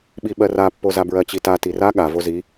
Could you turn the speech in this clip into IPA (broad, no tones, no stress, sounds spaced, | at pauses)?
ɓ i ɓ ɜ r a pː o z a b ɹ ɜ t͡ɕ i t a t i r a ɠ a v o z i